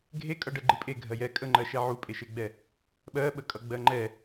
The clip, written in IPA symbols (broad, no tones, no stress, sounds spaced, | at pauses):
ɡʱ e kʼ ʌ ɖ ɜ ɡ͡ǃ ɨ pʼ e ɡʱ ɜ j ɛ kʼ ə ŋ͡ǃ ɜ ʃ ɛ ʕ u pʼ e ʃ e ɡ͡b ɛ | ɓ ɜ ɓ ə kʼ ʌ ɡ͡b ɜ ŋ͡ǃ ɛ